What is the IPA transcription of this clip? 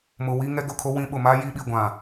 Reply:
m ʊ˨ w i˦ ŋ ɛ˦ ɡ ʊ˦˨ kʰ o˦ w ĩ˦ ɓ ʊ˨ m a˦ j i˦ ɓ i˨ ɡʷ ã˨

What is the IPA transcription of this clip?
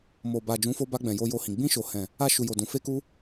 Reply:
m o˨ b a˨ d͡ʒ ũ˨˦ f o˧ b a˧ ɡ͡b ɛ̃˨ j o˧ j o˧ h ĩ˨ ɡ͡b ĩ˧ ʃ o˨ h ɛ̃˨ | a˧ ʃ u˨ j o˨ d ũ˨ f e˧ k u˧

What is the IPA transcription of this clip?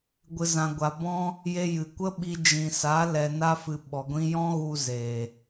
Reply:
ɡʷ ɨ˨ z ã˨ ɡʷ a˨ b ɔ̃˦ | j e˧ j ɨ˨ kʷ ə˦ ɓ i˧ d͡ʒ ĩ˨ s a˨˦ l ɛ˨ n a˧ f ɨ˨ ɓ ɔ˨ ɡʷ ĩ˧ j ɔ̃˦ ɣ u˦ z eː˨

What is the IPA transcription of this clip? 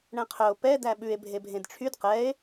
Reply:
ɳ ɛ̃ qʰ œ o̯ p ɛ d æ ɓ ʉ e̯ bʱ e bʱ ẽ d ʈ͡ʂʰ y d q ɛ e̯

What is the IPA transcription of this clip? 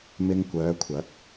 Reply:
m ɪ˧ ŋ kʷ œː˨˧ kʷʰ ɐ˨˥ k̚

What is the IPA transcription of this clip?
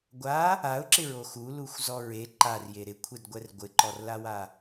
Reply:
ɡʷ a | a ʊ̯ ǁ ɪ ɹ o x u l u xʷ z ɔ ɹ e ǃ a r j e ɾ ɪ kʷʰ e d ɡʷ ɛ r ɡʷ ɪ ǃ ɔ r l a w a

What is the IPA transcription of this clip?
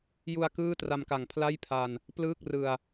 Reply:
j u˧ a̯ k ɯː˥˩ t r a˧ m k a˨˩ ŋ pʰ l a˥˩ j pʰ a˧ n | p l ɯː˥˩ k̚ r ɯ˧ a̯

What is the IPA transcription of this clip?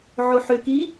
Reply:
ʕ o ħ ʏ k i

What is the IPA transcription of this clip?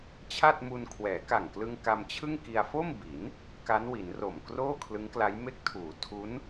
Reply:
t͡ɕʰ a˥˩ t̚ m u˧ n kʰ w ɛː˩˦ k a˨˩ ŋ k l ɯ˧ ŋ k a˧ m t͡ɕʰ ɯ˥˩ ŋ k i˧ a̯ f o˥˩ m b i˩˦ n | k a˦˥ n w i˩˦ n r o˨˩ m k r oː˥˩ kʰ l ɯ˦˥ ŋ k l a˦˥ j m e˦˥ k̚ tʰ uː˩˦ tʰ u˦˥ n

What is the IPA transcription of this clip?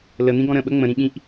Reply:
l ə n̪ ĩ ɡ ɔ̃ ɾ ə̃ ɓ ə ŋ͡m ə̃ ɾ ĩ ɠ ĩ ʔ

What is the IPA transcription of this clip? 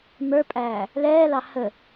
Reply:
m ə˞ pʼ æː | l ɛː l ɑ h ə

